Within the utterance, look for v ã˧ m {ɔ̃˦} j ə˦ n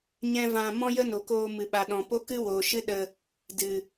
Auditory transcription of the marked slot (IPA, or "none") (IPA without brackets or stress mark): ɔ̃˦